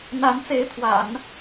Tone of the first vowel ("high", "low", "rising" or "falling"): rising